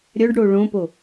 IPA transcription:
ɾʲ œ ɖ ɽ o ɭ õ p o

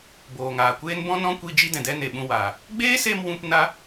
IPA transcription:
b oː˨ ŋ aː˨ kʷ eː˦ n b ɔ̃˦ n ɔ̃˦ kʷ i˧ d͡ʒ i˦ d ɛ̃˨ d ɛ˦ n e˨ ɓ ũ˧ w aː˨ | ɡ͡b eː˦ s e˧ m w ũ˧ p n a˦

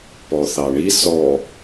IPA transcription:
p ɔ θ ɑ ɳ i s ɔ

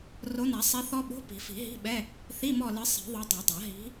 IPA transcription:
r o˨˦ n a˨˩˦ sˤ i˨˦ θ ɔ˦˥ ɓ o̤˧˥˧ p i̤˨˩˦ f i̤˨˩˦ ɦ i̤˧˥˧ ɓ ɛ˧˥˧ | θ i˧˥˧ m ɔ˦˨ l ɨ˨˦ sˤ i̤˨˩˦ ðˤ o˨˦ dˤ ɛ˨˩˦ dˤ a˨˩˦ ɦ i̤˨˦

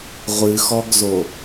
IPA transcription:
ʁʷ ɨ x ɔ ɡ z o

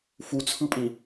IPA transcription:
f u t͡sʰ ɯ pʼ ĩ

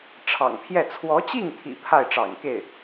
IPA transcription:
ʈ͡ʂʰ ɑ̰˨˩ ŋ pʰ j ɛ˥˩ t͡sʰ w ɔ˧˥ t͡ɕ i˥˩ ŋ t̪ʰ ḭ˨˩ pʰ a˥˩ ɪ̯ ʈ͡ʂ ɑ̰˨˩ ŋ k e˥˩ ɪ̯

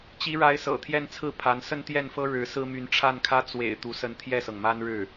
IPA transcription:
t͡ɕ i˧˥ ɻ a˧˥ ɪ̯ s ɤ̰˨˩ t̪ʰ j ɛ˥˧ n t͡sʰ ɹ̩˥˩ pʰ a˧˥ n s ə˥˧ n t̪ j ɛ˥˩ n f ɤ˥ ɻ ɻ̩˧˥ s ɹ̩˥ m y˧˥ n ʈ͡ʂʰ a˥˩ n kʰ ä˥ t͡s w ḛ˨˩ ɪ̯ t̪ u˧˥ s ə˥˧ n t̪ʰ j ɛ˥˩ s ɤ˩ ŋ m a˥ n ɻ ɻ̩˥˩

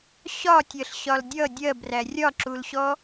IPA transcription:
ɕ ɒ tʲ ɜ ɬ ɕ ɒ l dʲ ʌ dʲ ɜ b r æ rʲ ɒ ǁ u l ɕ ɔ

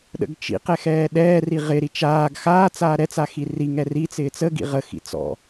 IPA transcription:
ɗ ə̰ ɡ t͡ʃ ḭ q ɛ x ɛː ɗ ɛː r i ʁ ɪ ɾ i t͡ʃ aː ɡ x aː t͡s aː ɾ ɛ t͡s a x i r i ŋ ɛ r i t͡s ɪː t͡s ə ɡ ḭ ʁ ə x ḭ t͡s ɔ̰

